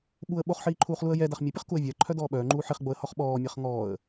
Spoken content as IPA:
ɓ u ə̯ ɓ o χ ħ iː ǃʰ uː χ l u ə̯ j ɛ d a χ mʲ ə pʲ ə χ k u ə̯ vʲ a ə̯ ǃʰ œ d ɔː ɓ œː ŋ͡ǃ uː ħ i χ ɡ͡b o ə̯ h ɔ χ ɓ ɔː mʲ a χ ŋ ɔː ə̯

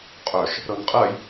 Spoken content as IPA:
qʼ œ ʃ | ɾ ɤ n qʼ ɜ j

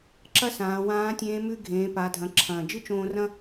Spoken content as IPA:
ǁ ɐ˥ s ãː˩˧ w ãː˧˥ tʲ ẽː˧˥ m ʉ˧ ɡʱ ẽː˩˧ p a˩˧ dʱ ɐ̃˩˧ ǁʰ ɐ̃ː˩ d͡ʒ ɨ˥ t͡ʃ õː˧ r ɐ̃˥

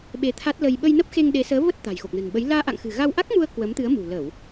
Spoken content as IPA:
ɓ e˧ t̪ʰ a˦˥ t̚ l ə˧ j ɓ ə˧ j n ə˦˥ p̚ x e˧ ŋ ɗ e˨˦ s əː˨˦ v ə˦˥ t̚ t̪ a̤˨˩ j x o˨˩ k̚ n ə̤˨˩ n ɓ ə˨˦ j l aː˧ ʔ a̰˧˨ ŋ x ɨ̤˨˩ ɣ a˧ w ʔ a˦˥ k̚ m u˧ ə̯ k w ə˨˦ m t̪ ɨ˨˦ ə̯ m ṳ˨˩ l ə˧˩˨ w

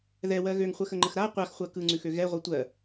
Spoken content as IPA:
ð ɛ w ɜ ɣ ø ŋ χʷ ɜ x ə ŋ͡ǃ ə x ɾ a qʷ a x χʷ ɜ k ɯ ŋ͡ǀ ʉ x ø ɣ ɛ ʁʷ ɯ tʷ ɜ

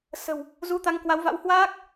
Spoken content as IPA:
s ə̤˨˩ w | z u˧ t̪ a˧ ŋ k w a˨˦ w v a̰˧˥ w h w aː˦˥ k̚

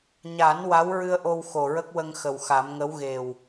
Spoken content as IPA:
ɲ a˨˩˦ n w a˧˥ w ɹ ɨ˧ ə̯ ʔ o˧ w x o˨˩ ɹ ə˦˥ k̚ w ə˧ ŋ x ə˨˩ w x a˨˩˦ m ŋ ə˧˥ w ɣ e˨˩ w

